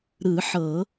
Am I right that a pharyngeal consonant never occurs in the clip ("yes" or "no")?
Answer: no